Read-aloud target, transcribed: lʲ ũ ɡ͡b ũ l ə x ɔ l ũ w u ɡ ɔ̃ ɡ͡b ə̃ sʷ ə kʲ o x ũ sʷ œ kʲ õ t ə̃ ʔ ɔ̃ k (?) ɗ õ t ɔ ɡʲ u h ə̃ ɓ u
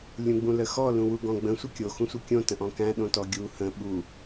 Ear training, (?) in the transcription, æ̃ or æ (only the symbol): æ̃